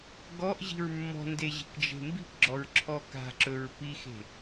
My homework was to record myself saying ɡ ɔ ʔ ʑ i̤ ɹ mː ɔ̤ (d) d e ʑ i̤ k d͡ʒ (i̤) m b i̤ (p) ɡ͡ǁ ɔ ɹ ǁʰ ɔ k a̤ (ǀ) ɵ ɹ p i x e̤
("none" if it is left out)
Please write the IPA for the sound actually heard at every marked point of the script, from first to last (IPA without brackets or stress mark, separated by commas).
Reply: n, e̤, p, ǁ